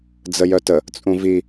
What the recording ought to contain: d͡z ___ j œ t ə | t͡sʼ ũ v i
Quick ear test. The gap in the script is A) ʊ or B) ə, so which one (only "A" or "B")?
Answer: B